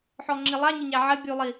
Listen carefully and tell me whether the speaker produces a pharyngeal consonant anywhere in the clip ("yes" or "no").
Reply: yes